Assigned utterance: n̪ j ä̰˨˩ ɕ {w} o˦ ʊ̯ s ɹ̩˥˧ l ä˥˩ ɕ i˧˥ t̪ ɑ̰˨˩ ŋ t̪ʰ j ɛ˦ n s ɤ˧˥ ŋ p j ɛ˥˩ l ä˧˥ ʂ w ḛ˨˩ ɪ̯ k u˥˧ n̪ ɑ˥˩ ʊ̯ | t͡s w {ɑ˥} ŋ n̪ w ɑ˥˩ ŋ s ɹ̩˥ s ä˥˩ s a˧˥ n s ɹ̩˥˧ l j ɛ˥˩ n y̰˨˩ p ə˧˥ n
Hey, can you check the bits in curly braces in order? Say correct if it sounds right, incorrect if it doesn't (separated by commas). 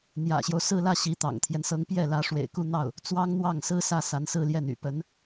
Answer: incorrect, correct